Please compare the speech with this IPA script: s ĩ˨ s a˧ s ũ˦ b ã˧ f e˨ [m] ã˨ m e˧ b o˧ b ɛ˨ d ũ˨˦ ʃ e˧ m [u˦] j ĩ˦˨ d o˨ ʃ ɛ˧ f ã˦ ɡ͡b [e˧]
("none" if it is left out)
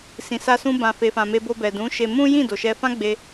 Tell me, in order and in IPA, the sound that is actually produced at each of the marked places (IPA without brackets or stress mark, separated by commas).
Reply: f, ũ˦, e˧